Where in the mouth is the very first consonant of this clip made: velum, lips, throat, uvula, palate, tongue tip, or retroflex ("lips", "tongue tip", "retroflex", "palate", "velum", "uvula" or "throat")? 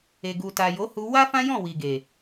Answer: velum